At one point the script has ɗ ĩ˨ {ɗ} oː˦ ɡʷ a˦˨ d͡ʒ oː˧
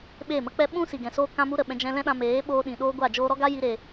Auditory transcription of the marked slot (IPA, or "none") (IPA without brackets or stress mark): ɗ